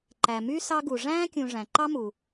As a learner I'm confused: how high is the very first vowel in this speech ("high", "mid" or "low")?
low